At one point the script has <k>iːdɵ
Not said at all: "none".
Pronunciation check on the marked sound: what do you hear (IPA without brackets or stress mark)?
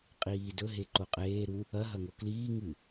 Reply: qʼ